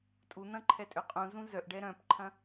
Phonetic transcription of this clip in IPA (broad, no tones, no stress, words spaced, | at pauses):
tʼun̪ɐ̃ ǃʰɛtʼøqʼũ zũzœʔɖɛ ɾœ̃pǃʰɐ̃